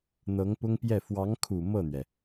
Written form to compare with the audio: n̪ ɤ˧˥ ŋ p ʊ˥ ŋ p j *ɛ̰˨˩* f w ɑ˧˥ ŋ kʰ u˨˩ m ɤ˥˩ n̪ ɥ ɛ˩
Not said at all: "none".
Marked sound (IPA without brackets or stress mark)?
ɛ˥˩